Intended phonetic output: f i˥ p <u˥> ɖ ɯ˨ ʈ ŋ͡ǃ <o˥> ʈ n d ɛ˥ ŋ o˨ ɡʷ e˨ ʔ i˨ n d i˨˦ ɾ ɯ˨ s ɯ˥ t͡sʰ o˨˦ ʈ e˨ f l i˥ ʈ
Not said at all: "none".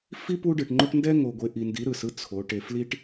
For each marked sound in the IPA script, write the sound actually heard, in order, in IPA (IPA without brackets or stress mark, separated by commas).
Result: u˥, o˥